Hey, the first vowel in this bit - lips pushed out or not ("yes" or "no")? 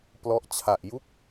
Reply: yes